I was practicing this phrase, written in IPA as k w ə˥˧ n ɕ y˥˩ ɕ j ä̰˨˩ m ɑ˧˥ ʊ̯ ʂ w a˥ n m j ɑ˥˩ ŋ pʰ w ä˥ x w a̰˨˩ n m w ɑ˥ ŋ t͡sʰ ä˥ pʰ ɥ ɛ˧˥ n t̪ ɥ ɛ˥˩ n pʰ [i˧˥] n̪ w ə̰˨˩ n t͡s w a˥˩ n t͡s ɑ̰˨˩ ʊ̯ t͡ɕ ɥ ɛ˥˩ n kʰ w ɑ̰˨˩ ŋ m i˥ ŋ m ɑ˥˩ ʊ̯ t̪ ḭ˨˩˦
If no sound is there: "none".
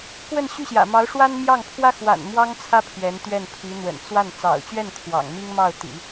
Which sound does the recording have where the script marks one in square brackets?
i˧˥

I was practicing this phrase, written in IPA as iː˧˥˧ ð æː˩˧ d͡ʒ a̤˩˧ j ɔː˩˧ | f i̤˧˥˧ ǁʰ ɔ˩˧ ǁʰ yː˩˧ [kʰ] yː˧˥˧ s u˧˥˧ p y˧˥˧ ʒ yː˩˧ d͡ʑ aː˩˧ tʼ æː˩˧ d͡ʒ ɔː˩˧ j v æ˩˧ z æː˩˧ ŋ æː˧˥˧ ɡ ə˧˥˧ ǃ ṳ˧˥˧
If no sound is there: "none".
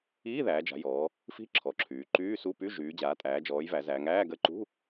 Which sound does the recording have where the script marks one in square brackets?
ǃ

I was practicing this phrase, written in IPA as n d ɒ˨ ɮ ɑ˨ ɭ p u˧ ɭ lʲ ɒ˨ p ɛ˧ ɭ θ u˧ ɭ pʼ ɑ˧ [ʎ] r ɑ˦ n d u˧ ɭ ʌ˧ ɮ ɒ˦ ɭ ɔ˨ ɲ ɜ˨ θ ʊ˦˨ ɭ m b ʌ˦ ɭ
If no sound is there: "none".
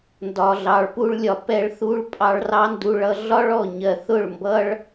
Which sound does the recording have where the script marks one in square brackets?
ɭ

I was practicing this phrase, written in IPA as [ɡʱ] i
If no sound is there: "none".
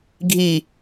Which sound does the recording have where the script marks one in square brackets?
ɡʱ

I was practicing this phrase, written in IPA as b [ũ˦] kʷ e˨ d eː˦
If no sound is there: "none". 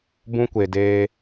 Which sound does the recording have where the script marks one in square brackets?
ũ˦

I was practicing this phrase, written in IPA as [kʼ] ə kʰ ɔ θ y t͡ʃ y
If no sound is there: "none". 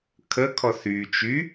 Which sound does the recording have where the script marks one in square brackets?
kʰ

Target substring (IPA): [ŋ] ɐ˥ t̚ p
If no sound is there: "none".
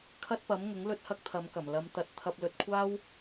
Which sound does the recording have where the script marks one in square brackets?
kʰ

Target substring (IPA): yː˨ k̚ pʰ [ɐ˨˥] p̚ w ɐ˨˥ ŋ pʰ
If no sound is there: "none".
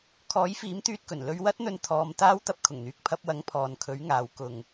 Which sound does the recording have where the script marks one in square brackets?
ɐ˧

